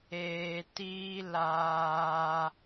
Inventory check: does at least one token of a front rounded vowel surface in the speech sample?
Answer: no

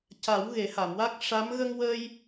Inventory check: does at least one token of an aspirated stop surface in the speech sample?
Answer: no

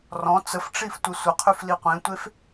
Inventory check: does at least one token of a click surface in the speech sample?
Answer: no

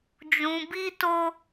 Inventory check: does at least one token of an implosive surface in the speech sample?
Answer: no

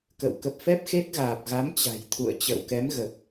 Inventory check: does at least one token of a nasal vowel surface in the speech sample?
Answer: no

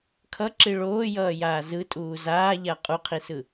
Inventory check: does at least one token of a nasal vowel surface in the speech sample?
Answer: no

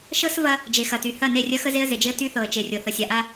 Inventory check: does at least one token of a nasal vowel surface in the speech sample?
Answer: no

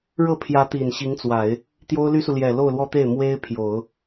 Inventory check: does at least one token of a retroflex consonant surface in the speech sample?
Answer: yes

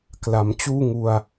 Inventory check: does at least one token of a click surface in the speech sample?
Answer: no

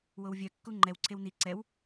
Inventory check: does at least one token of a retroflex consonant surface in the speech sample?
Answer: no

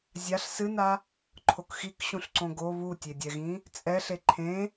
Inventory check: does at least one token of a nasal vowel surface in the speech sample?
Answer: yes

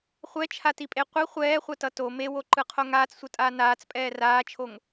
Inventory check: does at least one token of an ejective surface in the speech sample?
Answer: yes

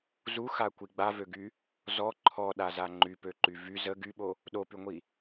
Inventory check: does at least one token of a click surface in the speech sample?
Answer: yes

